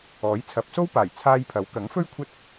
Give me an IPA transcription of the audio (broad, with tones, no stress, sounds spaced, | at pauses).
ɔː˨˥ j t͡sʰ ɐ˨˥ p̚ s o˥ w p aː˨˩ j t͡sʰ aː˧ j pʰ ɐ˨˥ w k ɐ˨˥ ŋ f ɵ˥ ɥ kʷʰ ɐ˥ t̚